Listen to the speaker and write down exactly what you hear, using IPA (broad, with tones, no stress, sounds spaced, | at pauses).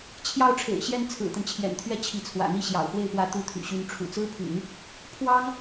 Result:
t͡ɕʰ j ɑ˥˩ ʊ̯ ʈ͡ʂʰ ḛ˨˩ ɪ̯ ɕ j ɛ˥˩ n t͡sʰ ɹ̩˨˩ t̪ ə˦ n t͡ɕʰ j ɛ̰˨˩ n t̪ʰ ɥ ɛ˥ t͡ɕʰ i˧˥ t͡sʰ w ä̰˨˩ n̪ i˥˩ ɕ j ɑ̰˨˩ ʊ̯ x w e˥˩ ɪ̯ p w ä˧˥ t̪ u˧˥ t̪ʰ y̰˨˩ ɕ y˧˥ n ʈ͡ʂʰ ṵ˨˩ t͡s ɹ̩˥ pʰ y̰˨˩˦ n | pʰ w ɑ˥ ŋ